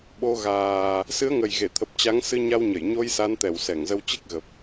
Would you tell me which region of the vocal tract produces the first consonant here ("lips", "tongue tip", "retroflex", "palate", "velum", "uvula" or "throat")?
lips